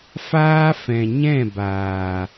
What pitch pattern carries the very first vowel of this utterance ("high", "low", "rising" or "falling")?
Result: high